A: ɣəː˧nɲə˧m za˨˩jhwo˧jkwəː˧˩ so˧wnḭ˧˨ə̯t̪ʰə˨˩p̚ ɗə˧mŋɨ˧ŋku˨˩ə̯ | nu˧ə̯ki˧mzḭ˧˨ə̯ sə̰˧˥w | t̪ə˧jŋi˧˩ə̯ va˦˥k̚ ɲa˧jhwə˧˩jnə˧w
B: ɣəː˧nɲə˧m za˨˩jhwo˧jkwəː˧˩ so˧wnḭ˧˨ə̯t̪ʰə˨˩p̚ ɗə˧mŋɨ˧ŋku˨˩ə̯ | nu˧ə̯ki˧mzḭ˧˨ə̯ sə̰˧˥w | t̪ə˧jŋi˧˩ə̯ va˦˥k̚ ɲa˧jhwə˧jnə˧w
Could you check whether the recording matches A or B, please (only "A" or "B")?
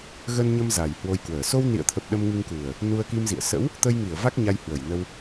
A